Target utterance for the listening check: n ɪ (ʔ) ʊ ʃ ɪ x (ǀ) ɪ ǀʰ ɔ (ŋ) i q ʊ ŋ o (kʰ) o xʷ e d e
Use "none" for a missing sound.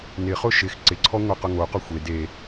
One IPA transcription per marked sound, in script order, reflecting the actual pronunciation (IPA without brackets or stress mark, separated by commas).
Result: χ, ǀ, ŋʷ, q